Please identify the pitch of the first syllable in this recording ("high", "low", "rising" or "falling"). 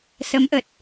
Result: rising